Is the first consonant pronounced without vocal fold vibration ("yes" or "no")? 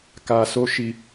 yes